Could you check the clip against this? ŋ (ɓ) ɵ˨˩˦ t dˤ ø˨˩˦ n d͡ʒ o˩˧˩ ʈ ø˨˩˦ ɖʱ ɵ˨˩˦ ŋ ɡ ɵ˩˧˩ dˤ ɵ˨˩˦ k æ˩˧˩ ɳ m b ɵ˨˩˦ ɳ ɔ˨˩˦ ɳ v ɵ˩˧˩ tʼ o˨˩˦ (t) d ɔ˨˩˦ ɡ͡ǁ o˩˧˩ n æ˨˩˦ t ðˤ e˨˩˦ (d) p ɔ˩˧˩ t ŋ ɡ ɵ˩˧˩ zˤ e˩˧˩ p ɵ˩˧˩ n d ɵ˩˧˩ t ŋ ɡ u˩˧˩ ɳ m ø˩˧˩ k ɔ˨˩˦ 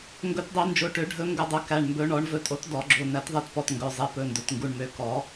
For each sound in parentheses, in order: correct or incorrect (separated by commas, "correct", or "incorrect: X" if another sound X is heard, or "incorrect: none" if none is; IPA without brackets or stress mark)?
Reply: incorrect: ɡ, correct, incorrect: t